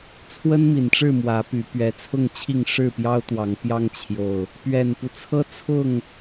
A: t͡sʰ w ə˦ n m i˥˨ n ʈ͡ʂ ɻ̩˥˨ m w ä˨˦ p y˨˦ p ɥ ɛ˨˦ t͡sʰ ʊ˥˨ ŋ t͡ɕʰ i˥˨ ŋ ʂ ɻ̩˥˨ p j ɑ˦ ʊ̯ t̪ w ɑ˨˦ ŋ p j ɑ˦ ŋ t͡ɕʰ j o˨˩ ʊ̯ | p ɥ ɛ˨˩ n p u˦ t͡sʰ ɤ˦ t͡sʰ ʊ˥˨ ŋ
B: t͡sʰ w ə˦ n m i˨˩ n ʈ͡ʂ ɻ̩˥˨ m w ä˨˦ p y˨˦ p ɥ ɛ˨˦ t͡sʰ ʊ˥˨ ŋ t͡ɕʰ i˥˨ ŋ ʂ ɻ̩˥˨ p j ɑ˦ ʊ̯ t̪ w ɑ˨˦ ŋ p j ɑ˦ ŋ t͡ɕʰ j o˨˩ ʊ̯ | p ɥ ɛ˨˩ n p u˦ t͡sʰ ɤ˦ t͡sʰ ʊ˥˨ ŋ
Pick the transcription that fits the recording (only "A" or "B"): B